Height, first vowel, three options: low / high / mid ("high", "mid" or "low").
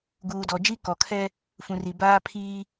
high